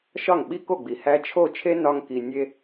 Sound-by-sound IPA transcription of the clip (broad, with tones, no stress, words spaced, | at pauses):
ʃɒ˥˩ŋɓi˥ko˥˩ɡ͡bi˩ hæ˧ t͡ʃʰo˥˩t͡ʃʰe˥ nɒ˧ŋki˩ nʲe˧